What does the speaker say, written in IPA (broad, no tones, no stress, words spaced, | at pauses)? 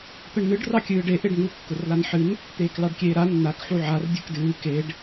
t̪əɳnɨɖ rɑkʲɨːɖe ʔeɖŋu kːʊrlanħɨn | t̪eːklɑɖkʲeːɾa nːak ħuʕar dʲɨkdɨː keɖ